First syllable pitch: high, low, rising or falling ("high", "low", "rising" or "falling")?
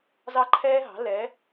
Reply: high